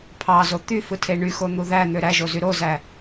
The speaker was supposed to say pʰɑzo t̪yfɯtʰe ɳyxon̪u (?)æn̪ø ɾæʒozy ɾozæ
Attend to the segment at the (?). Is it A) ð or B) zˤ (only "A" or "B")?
A